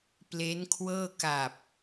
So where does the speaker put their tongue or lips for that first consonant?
lips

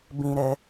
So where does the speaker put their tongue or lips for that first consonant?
lips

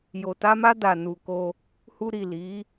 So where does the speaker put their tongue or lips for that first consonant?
palate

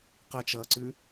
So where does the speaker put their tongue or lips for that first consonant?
uvula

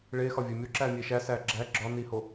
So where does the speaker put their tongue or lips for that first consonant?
retroflex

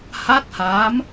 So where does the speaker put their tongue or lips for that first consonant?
throat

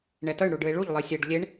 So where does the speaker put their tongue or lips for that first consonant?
retroflex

